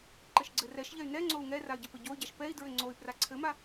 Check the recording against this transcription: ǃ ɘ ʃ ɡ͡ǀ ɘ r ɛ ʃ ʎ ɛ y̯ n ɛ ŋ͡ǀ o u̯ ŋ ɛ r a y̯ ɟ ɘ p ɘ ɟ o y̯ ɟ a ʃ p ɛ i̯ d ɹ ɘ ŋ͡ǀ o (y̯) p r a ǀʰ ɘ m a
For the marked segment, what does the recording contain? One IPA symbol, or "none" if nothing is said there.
y̯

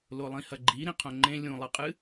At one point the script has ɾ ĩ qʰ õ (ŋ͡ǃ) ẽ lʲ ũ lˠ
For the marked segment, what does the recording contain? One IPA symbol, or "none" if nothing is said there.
ŋ͡ǃ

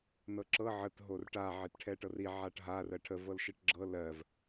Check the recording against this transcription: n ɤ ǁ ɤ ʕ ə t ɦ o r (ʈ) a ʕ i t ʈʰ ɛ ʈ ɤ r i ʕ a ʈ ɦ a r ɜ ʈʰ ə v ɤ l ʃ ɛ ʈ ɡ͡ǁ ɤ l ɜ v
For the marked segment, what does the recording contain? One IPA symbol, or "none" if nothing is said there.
ʈ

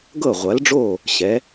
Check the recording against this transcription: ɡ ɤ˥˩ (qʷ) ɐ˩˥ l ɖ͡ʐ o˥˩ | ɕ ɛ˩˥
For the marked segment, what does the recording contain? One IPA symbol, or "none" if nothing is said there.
ʁʷ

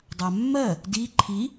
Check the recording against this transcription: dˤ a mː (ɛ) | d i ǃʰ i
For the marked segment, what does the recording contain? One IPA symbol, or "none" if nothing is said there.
ɜ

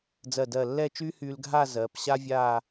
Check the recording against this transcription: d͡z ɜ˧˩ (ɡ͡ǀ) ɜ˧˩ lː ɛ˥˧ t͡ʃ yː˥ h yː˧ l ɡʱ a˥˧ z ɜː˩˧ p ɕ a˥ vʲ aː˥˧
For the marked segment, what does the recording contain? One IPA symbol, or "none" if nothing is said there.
d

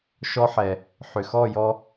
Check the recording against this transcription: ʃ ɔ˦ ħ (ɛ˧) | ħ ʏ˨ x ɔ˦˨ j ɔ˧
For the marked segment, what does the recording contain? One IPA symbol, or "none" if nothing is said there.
ɛ˨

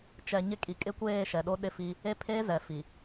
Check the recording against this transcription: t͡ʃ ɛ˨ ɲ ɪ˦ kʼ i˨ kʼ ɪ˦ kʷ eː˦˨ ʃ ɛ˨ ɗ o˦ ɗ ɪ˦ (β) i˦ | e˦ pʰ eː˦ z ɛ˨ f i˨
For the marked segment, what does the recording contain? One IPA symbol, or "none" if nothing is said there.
f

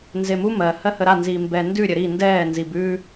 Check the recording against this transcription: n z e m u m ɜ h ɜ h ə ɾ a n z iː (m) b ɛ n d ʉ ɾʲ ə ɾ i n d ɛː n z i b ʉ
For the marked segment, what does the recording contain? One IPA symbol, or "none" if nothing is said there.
m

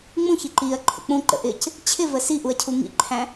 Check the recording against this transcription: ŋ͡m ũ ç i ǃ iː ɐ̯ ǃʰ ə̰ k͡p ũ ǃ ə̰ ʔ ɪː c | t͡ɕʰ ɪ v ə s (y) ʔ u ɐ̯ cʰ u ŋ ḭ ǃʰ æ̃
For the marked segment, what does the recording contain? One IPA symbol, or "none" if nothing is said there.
i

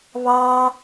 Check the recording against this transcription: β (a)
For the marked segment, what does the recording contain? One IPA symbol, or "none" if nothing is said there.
ɑ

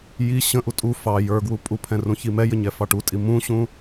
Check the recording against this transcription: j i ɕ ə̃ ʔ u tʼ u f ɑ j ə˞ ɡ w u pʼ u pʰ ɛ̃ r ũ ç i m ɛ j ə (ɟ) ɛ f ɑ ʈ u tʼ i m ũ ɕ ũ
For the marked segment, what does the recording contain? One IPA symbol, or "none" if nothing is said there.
ɲ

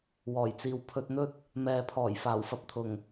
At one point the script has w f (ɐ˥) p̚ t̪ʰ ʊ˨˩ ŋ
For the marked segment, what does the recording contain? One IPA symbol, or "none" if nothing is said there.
ɐ˧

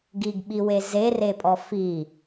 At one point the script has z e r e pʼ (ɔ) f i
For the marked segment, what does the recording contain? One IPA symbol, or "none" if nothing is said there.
ɔ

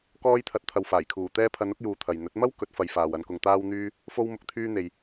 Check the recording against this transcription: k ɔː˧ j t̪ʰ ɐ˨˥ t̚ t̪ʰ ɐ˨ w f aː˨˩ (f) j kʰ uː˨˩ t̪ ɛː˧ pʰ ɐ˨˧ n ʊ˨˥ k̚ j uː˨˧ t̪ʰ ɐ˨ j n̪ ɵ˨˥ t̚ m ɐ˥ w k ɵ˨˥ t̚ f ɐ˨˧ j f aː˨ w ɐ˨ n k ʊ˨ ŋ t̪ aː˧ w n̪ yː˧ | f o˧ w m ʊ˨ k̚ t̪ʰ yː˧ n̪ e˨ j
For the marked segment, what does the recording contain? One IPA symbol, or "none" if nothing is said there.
none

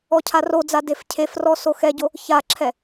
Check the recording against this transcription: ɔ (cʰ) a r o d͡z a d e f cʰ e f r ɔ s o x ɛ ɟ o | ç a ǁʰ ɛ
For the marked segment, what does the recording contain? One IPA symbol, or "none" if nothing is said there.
cʰ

